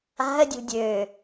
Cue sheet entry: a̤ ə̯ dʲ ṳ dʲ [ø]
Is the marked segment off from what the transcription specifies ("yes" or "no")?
no